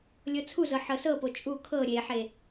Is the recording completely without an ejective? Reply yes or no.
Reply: no